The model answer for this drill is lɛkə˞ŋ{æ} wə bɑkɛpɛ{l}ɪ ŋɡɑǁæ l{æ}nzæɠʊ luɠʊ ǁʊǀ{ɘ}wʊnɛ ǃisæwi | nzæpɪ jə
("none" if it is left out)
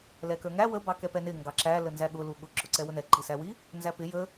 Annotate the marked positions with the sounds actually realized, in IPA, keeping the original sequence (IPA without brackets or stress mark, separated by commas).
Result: æ, n, ə, ɛ